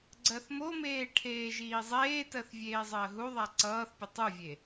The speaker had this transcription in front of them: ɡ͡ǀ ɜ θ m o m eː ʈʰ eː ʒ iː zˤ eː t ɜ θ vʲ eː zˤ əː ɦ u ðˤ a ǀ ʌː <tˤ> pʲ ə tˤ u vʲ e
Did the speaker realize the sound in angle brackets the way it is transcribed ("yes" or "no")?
no